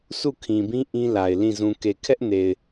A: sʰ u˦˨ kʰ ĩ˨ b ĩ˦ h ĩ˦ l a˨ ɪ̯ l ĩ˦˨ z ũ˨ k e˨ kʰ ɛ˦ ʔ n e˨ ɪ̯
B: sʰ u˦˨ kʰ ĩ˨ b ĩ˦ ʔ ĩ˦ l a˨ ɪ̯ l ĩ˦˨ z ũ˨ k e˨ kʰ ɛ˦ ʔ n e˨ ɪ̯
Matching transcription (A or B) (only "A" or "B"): B